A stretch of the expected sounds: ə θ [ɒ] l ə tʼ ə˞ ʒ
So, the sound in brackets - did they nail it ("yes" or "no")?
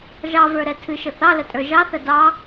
no